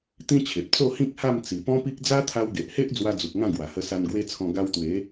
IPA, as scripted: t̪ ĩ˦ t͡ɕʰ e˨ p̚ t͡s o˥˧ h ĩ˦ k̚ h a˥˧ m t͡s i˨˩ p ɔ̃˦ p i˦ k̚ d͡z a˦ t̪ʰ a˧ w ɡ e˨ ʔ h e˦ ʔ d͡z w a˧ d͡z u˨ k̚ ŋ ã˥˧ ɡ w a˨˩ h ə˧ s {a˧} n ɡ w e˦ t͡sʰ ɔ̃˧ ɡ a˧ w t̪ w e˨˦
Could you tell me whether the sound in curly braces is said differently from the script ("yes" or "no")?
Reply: no